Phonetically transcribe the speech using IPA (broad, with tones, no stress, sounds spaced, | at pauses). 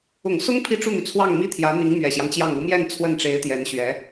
ʊ˨˩ ŋ s ʊ˥ ŋ pʰ i˥˧ ʈ͡ʂ u˥˩ n̪ y˩ t͡sʰ w ɑ˥˩ ŋ m i˥ t̪ʰ j ä˧˥ n̪ i˧˥ ŋ m ɥ ɛ˨˩ ɕ j ɑ˦ ŋ t͡ɕ j ɑ˥˩ ŋ u˧˥ m j ɛ˥˧ n t͡sʰ w ə˥˩ n ʈ͡ʂ e˧˥ ɪ̯ t̪ j ɛ˧˥ n ɕ ɥ ɛ˧˥